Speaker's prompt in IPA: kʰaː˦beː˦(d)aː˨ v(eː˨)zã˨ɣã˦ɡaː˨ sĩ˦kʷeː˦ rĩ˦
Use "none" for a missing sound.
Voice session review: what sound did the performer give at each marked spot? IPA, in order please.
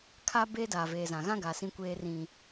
d, eː˨

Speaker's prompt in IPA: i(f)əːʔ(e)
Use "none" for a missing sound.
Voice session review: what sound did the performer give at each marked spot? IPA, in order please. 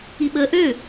ɓ, ø

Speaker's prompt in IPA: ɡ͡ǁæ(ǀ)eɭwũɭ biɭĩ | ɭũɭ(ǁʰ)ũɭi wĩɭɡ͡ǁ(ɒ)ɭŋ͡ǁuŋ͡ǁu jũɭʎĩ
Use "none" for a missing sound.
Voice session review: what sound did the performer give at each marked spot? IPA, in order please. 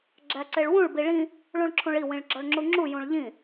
ǀ, ǁʰ, ɒ

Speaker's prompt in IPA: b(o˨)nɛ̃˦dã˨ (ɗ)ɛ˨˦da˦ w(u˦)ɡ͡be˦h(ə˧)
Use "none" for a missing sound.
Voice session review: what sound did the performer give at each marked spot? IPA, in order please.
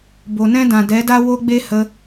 o˨, d, o˦, ə˧

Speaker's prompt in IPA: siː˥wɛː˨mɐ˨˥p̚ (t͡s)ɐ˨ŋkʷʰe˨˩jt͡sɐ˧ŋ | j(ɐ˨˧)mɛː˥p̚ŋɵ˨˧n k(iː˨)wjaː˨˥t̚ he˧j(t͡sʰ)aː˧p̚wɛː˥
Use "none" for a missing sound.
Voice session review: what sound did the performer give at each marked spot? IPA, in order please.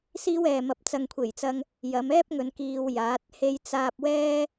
t͡s, ɐ˨˧, iː˧, t͡s

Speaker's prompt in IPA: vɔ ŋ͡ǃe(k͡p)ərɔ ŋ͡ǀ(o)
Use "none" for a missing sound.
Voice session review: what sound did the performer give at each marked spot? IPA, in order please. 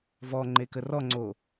k, o

